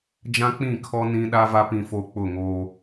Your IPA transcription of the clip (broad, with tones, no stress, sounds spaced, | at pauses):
d͡ʒ ã˦ k͡p ĩ˦˨ kʰ ɔ˦ n ĩ˦ ɗ a˦ v a˦ p ĩ˨ f o˨ k͡p ʊ˦˨ ŋ oː˦